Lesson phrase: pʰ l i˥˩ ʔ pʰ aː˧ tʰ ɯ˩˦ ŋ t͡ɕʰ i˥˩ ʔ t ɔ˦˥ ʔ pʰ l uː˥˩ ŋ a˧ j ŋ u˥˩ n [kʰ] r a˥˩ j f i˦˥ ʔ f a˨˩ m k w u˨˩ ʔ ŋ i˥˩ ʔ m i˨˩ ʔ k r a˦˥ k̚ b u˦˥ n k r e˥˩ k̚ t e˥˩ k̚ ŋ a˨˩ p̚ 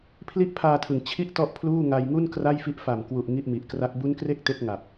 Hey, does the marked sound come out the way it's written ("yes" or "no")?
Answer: no